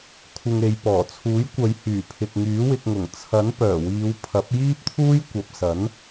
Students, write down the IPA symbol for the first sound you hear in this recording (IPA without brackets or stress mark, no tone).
kʷʰ